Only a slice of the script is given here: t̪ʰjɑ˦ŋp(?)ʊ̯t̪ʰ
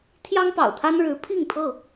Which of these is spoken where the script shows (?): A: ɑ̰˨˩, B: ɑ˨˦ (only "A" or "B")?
A